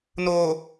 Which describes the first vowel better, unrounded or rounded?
rounded